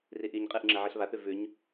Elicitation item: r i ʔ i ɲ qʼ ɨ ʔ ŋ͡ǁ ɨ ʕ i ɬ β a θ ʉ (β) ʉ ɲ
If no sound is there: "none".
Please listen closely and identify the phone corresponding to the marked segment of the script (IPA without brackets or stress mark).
v